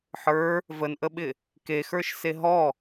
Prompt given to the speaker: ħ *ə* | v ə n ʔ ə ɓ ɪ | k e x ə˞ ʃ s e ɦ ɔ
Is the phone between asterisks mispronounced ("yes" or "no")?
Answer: yes